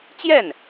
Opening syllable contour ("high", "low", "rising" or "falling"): falling